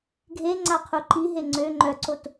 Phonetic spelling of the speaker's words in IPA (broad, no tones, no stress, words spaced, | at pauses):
ɡʱe ŋ͡ǀaqʰuǃiɦe ŋ͡ǀø ŋ͡ǃœǀot